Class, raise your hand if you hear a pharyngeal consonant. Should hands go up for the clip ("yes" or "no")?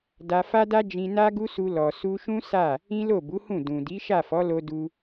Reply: no